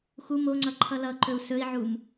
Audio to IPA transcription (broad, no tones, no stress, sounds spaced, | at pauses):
x u m o ŋ͡ǀ ʌ ǃʰ ʌ l ʌ ǃ ɵ u̯ s ɵ i̯ ʕ u m